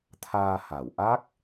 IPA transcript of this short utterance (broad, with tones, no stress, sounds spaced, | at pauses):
t̪ʰ aː˧ h a˨˩ w ʔ a˦˥ k̚